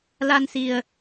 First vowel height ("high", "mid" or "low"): low